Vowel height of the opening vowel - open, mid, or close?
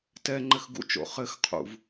mid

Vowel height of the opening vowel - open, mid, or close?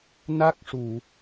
open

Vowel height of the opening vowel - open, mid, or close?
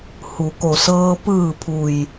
close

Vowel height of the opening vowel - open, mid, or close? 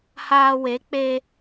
open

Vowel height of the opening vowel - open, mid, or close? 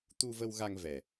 close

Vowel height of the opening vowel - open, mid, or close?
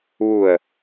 close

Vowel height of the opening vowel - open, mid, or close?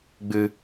close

